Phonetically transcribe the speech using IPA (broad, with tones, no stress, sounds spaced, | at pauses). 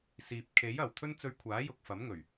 s iː˨ p̚ kʰ e˨˥ j ɐ˨˩ w t̪ʰ ɵ˧ n t͡s ɵ˨˧ ɥ kʷʰ aː˨˥ j ʊ˨ k̚ f ɐ˨˥ m ŋ ɵ˨˩ ɥ